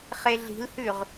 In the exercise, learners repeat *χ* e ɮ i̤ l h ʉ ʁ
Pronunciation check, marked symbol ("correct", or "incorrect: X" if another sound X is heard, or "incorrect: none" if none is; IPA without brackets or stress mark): correct